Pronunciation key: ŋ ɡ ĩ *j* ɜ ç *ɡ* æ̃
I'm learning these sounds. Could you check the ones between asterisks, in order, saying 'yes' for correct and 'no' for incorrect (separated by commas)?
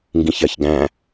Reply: no, yes